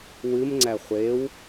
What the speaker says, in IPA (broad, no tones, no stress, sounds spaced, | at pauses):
w ɨ m ŋ͡ǀ æ χʷ e w